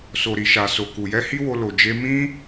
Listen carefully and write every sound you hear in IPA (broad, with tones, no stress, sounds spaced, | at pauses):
s o˨ ɾ i˨ ʃ a˨ s o˨ k u˨ j ɛ˧ h i˦ w o˧ l o˨ d͡ʒ e˧ m ĩ˧